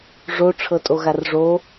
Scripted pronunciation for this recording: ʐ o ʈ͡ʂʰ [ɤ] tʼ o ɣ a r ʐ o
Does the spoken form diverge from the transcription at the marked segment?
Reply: no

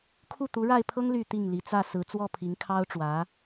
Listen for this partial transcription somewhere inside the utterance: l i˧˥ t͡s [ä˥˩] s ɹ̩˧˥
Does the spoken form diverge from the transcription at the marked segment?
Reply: no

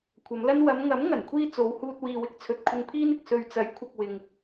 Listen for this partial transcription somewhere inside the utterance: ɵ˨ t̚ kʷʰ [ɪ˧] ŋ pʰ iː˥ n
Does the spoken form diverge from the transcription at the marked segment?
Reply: no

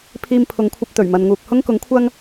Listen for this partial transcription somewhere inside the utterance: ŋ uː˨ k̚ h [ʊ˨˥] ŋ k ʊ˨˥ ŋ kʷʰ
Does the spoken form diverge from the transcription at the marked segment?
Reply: yes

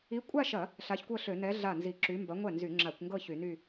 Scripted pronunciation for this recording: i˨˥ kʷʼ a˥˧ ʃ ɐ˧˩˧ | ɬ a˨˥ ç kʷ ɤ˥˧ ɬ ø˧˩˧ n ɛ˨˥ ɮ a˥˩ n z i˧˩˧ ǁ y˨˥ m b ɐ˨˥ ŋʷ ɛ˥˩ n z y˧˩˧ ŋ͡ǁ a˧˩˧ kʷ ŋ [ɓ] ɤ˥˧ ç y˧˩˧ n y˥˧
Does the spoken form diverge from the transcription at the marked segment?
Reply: yes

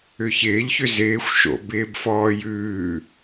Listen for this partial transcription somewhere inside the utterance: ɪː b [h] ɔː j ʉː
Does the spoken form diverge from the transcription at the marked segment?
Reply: yes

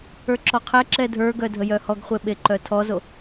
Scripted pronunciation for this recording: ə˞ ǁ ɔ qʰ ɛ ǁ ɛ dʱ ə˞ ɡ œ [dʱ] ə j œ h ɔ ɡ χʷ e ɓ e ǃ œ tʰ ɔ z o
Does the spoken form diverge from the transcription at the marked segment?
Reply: no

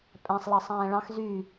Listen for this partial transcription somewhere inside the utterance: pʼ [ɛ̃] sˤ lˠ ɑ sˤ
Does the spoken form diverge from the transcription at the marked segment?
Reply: yes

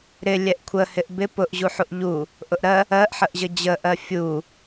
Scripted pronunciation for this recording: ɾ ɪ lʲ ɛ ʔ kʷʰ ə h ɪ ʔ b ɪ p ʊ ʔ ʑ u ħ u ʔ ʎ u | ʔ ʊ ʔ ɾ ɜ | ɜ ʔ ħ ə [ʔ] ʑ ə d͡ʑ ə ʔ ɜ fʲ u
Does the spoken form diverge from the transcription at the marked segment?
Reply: no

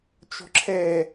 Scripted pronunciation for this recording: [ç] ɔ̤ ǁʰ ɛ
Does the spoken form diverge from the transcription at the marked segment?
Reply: yes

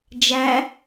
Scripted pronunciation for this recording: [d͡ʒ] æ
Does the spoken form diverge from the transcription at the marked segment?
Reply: no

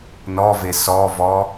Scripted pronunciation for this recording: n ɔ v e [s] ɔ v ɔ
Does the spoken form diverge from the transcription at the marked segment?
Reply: no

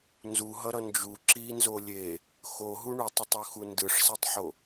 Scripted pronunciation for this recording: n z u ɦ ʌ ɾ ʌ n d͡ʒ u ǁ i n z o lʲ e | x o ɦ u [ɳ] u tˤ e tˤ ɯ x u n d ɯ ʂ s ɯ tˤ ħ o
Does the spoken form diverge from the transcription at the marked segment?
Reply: no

